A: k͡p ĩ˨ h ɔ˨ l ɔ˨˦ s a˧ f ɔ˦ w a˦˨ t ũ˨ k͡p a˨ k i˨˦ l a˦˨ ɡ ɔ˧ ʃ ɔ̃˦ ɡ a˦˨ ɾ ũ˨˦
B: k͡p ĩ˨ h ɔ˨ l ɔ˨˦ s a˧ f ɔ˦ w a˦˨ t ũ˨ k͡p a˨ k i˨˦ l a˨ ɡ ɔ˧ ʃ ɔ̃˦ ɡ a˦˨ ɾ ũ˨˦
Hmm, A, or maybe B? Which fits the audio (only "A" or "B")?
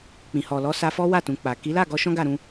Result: A